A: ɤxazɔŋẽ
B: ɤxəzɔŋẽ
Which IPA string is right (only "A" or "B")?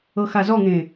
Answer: A